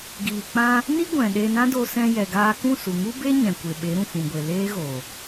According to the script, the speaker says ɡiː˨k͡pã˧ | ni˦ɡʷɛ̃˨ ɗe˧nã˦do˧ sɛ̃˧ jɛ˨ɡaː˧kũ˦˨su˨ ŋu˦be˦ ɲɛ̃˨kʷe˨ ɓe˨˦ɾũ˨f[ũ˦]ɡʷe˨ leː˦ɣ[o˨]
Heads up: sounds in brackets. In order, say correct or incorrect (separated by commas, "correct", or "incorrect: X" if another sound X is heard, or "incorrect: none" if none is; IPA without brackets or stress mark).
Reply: incorrect: ũ˨, correct